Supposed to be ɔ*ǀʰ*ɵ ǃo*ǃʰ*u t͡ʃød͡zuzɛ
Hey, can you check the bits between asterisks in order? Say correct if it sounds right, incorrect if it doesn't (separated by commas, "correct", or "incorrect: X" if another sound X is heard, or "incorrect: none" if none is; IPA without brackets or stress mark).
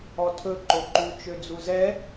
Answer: incorrect: tʰ, incorrect: ǃ